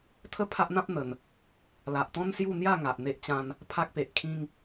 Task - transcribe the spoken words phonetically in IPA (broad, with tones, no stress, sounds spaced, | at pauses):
t̪ʰ ə˥˧ pʰ a˦ ʔ n̪ ã˦ p̚ n̪ ə˨˩ n | l a˨ ʔ t̪ ɔ̃˦ n s j u˥˧ n̪ j a˥˧ ŋ a˨ ʔ n̪ e˦ ʔ t͡ɕ ã˦ n | pʰ a˦ k̚ p e˨ ʔ kʰ ĩ˦ ŋ